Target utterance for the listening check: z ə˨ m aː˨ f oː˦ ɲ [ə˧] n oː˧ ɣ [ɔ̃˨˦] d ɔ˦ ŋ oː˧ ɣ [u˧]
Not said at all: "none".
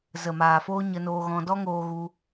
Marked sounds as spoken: ə˧, ɔ̃˧, u˧

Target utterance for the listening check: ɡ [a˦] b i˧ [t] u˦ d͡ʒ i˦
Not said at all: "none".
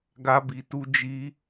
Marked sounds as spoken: a˦, t

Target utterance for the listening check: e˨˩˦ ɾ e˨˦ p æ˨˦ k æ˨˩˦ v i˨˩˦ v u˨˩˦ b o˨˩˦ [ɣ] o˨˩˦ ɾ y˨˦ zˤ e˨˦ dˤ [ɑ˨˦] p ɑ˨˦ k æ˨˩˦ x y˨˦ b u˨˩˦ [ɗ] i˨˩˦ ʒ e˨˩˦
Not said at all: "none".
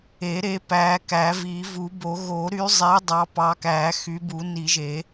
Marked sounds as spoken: ɣ, ɑ˨˦, n

